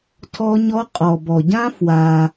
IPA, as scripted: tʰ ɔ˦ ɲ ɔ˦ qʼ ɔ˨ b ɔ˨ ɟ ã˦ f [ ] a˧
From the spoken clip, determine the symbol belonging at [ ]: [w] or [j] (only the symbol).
w